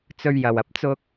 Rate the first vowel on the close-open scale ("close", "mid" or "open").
mid